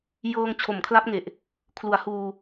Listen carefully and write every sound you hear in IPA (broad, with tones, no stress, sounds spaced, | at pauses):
j ɤː˧ ŋ t͡ɕʰ o˩˦ m kʰ l a˦˥ p̚ ŋ e˨˩ ʔ | kʰ l u˩˦ a̯ h uː˧